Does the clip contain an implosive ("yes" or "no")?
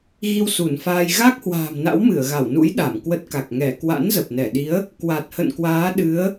yes